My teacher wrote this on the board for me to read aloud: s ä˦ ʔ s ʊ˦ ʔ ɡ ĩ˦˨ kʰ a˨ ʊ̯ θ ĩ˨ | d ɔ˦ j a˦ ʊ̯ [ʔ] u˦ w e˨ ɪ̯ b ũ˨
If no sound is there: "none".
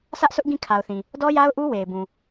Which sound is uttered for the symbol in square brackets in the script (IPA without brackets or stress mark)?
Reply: ʔ